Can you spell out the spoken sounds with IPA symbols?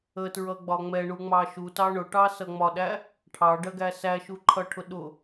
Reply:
ə t ɹ ʌ ɡ͡b ɒ ŋ͡m ɛ ɳ u ŋ͡m ɑ ʃ u t ɑ ɳ ʊ ʈ ɑ s ʌ ŋ͡m ɒ ɗ æ | ʈʰ ɑ ɖ ɜ ɡ æ s æ ʃ u ǃʰ ʌ ʈʰ ʊ ɗ ʊ

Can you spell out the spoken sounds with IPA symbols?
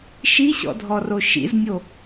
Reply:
ʃ i ɕ ɔ̰ dʱ ɔ r o ʃ ḭ z nʲ o

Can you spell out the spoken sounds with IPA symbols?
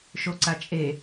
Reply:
ʃ o ǀ a t͡ʃʼ e

